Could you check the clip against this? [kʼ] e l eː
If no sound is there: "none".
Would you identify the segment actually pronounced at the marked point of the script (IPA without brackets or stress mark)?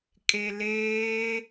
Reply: kʼ